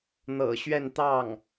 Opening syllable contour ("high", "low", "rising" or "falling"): low